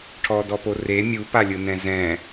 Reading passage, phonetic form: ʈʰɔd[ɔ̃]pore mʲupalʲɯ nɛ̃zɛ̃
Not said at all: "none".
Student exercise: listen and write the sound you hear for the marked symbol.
ɔ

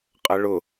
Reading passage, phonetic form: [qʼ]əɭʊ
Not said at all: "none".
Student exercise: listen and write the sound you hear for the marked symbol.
qʼ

